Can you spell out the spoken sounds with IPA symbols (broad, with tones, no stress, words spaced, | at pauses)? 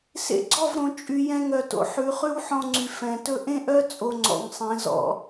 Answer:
sḛ˧ɡ͡ǀɔ˦˨v ɾõ˨t͡ʃʼy˨ jɛ̃˧ŋœ˨to̰˨ ħʉ˨˦χʉ˦w ħɔ̃˧ŋ͡ǀy˨ fɛ̃˨ tɵ˧ʔẽ˦ʔœ˦ t͡sʼo˧ŋ͡ǀɔ̰˨ŋsˤẽ˨˦zɔ̰˨